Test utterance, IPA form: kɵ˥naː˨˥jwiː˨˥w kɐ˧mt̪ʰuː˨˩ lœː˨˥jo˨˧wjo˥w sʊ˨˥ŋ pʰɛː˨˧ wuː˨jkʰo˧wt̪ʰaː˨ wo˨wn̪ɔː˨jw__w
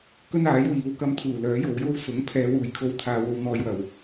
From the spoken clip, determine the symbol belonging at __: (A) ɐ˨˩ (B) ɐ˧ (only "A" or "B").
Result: A